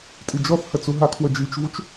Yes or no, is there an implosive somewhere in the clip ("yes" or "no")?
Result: no